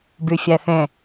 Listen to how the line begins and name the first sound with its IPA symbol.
b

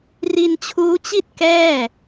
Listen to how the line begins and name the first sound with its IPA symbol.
r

